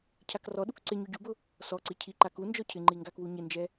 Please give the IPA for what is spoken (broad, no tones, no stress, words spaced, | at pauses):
cʰakrɔɗuk ǀɪ ɲuɟubʊ | sɔǀi cʰiǃa ku nd͡ʒɔcʰɪŋ͡ǃi ŋɡakwuɲɪnd͡ʒɛ